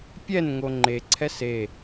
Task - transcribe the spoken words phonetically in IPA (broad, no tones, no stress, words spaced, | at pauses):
pʲɛnŋo ŋ͡ǃeǀʰɛs e